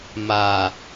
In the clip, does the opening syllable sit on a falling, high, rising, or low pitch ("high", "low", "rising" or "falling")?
low